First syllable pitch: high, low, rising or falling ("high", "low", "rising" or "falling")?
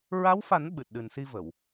rising